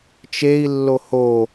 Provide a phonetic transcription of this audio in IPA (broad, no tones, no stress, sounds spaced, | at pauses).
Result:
t͡ʃ e i̯ lː o h o